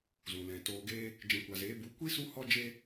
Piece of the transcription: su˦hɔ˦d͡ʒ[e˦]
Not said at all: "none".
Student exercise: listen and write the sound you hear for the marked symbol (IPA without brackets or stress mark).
e˦